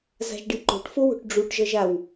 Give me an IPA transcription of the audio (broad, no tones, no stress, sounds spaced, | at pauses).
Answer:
z a̤ ʒ ɖ i ǃ o̤ ʈ f o w o̤ ʈ ɖ͡ʐ u ʈ ʒ ʌ ʒ a w